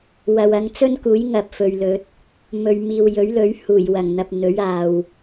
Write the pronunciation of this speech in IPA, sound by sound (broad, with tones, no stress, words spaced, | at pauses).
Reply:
wɐ˨wɐ˧ŋ t͡sɵ˥nkuː˨˥j ŋɐ˨p̚ fɵ˨ɥlɵ˨˥t̚ | mɵ˨ɥmiː˨w jɵ˨˥ɥlɵ˨˥ɥ huː˨˩jwɐ˨˩ŋn̪ɐ˨p̚ n̪ɵ˨˥ɥaː˨w